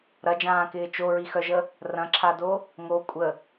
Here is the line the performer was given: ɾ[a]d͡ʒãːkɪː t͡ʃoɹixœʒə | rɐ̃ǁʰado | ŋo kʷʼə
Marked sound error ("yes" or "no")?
yes